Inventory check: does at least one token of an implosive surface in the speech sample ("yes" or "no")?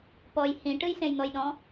yes